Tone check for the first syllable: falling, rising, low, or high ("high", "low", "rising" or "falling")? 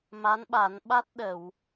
rising